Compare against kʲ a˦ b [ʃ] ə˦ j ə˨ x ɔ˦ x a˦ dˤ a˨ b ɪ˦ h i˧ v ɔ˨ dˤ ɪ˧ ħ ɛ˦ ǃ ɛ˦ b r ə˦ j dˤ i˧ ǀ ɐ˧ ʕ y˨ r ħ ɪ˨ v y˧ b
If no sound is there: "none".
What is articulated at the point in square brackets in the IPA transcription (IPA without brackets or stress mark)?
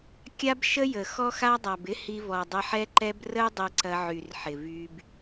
ʃ